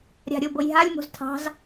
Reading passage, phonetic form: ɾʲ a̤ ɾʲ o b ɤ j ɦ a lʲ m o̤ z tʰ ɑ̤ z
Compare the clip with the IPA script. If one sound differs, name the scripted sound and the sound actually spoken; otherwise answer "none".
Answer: none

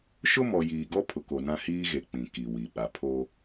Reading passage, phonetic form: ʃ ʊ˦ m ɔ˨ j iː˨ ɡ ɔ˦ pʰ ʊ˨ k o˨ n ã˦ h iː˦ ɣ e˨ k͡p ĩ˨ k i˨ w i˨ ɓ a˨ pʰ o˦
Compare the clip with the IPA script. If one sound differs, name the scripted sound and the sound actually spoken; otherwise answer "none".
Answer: none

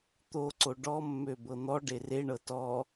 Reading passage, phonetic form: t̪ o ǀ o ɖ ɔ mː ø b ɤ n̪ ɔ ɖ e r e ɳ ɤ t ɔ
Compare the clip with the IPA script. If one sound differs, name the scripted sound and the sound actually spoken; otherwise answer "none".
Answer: none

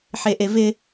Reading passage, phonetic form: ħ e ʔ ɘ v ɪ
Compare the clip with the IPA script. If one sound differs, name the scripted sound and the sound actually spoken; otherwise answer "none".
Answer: ɘ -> e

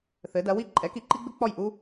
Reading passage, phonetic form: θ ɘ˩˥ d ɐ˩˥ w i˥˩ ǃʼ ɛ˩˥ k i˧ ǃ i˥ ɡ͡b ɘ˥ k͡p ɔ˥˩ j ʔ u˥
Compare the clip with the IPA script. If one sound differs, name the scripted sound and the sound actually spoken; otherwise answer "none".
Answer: none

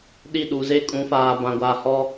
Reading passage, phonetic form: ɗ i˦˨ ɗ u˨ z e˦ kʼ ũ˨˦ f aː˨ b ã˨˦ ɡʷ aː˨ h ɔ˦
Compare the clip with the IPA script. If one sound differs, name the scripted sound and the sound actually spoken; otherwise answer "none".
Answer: ã˨˦ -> ã˨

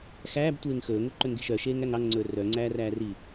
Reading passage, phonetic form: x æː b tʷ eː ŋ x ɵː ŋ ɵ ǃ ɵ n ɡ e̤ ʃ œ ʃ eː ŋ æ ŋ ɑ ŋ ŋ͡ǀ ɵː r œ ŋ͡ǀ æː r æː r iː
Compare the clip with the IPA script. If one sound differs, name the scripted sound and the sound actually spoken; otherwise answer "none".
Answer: none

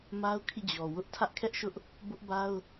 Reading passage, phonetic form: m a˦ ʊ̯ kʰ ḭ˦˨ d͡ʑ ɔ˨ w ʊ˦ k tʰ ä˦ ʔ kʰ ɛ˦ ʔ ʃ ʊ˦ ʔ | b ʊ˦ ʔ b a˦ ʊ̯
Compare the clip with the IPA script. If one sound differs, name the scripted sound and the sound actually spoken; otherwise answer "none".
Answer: k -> ʔ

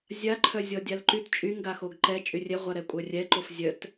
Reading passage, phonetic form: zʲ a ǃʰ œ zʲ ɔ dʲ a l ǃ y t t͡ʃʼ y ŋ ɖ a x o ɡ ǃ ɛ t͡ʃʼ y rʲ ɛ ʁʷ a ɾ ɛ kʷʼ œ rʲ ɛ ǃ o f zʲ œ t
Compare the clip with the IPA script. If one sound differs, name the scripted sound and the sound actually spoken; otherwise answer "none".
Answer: ɖ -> ɡ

